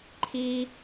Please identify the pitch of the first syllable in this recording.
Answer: high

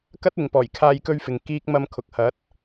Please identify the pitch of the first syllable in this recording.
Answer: high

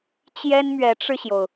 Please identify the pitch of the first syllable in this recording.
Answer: high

